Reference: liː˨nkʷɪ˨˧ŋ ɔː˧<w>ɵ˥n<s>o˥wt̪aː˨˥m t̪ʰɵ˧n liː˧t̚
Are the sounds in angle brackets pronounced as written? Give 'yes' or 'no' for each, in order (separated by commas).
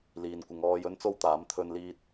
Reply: no, no